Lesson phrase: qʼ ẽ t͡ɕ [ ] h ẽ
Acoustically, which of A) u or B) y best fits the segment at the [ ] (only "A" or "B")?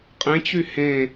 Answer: B